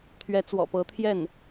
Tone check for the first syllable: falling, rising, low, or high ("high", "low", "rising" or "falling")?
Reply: rising